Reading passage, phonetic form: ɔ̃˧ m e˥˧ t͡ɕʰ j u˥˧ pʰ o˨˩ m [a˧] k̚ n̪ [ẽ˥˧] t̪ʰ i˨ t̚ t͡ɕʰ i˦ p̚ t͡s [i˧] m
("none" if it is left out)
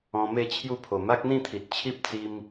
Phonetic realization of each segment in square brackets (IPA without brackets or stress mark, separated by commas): a˦, ĩ˥˧, i˦